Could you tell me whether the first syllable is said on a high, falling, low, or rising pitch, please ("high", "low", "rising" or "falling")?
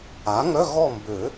rising